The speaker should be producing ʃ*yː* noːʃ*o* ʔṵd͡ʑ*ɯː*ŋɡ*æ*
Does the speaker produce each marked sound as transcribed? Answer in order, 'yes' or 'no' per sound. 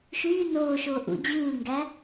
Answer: yes, no, yes, yes

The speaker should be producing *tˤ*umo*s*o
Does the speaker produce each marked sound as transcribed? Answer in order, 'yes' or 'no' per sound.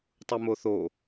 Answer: yes, no

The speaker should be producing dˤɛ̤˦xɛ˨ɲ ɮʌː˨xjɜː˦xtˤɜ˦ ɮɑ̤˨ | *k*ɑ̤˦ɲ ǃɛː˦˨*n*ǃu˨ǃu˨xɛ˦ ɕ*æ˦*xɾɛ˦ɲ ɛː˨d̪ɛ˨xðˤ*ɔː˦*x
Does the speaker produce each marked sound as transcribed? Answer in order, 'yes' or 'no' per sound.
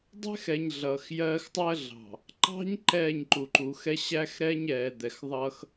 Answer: no, no, yes, no

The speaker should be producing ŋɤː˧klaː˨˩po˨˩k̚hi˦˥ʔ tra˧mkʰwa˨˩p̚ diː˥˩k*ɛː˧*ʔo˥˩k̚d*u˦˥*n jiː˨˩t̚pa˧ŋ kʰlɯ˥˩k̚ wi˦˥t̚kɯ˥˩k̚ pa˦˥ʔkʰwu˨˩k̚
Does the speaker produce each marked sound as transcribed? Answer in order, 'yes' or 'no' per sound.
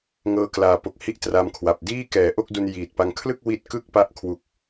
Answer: no, no

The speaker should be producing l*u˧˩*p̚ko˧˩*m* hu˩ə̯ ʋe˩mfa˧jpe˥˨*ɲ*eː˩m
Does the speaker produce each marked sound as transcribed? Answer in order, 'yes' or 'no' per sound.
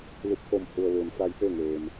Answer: yes, yes, no

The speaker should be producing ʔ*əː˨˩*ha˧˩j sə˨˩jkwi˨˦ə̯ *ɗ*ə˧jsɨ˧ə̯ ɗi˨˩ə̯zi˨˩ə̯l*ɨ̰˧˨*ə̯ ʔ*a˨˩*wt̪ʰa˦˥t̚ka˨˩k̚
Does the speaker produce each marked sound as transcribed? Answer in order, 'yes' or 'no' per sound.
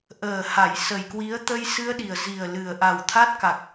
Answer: yes, no, no, yes

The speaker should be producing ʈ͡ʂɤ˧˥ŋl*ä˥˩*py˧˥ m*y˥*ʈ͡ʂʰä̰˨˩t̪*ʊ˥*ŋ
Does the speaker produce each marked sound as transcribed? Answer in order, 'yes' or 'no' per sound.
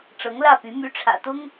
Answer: yes, no, yes

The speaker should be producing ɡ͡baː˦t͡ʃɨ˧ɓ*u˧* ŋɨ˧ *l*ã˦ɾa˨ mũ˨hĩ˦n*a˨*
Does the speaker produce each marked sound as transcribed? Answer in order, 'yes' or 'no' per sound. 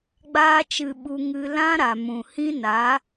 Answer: yes, yes, no

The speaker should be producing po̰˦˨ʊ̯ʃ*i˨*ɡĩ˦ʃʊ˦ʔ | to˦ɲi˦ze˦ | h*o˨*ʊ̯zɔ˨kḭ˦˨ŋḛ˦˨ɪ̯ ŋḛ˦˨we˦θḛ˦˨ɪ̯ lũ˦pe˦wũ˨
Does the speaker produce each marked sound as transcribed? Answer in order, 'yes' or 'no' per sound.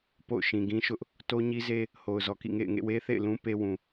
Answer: no, yes

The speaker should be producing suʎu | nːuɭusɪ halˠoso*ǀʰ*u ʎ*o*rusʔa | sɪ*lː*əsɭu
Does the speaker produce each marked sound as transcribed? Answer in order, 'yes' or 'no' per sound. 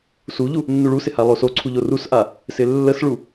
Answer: yes, yes, yes

